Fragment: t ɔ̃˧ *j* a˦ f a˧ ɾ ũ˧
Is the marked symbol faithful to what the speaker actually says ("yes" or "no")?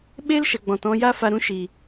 yes